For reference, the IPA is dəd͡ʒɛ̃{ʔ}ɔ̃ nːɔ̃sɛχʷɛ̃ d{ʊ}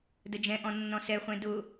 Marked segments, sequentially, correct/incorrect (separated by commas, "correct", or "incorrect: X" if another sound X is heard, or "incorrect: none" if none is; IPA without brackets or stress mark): correct, correct